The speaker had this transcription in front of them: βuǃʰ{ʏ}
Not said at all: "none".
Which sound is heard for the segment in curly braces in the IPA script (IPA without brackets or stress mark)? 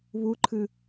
ɨ